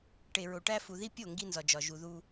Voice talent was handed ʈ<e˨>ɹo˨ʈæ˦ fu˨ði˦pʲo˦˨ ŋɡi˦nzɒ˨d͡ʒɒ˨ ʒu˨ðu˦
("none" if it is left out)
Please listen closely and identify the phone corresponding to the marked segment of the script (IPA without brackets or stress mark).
e˨